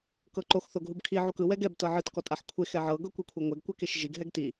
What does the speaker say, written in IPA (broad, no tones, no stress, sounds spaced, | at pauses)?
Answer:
k ɤ ǃ o x θ o ɡ ɦ u b kʰ i ʕ u k ɯ w ɛ ɡ ɛ b t ɤ ʕ ɯ t k ɔ tʼ a ħ kʷʰ e x ɛ ʕ ɤ ɡ ɤ kʷ i kʷʰ ɛ ŋʷ ɛ ɡ kʷ ɛ k e ʃ ʒ i ɡ ɦ ɛ ɡ t i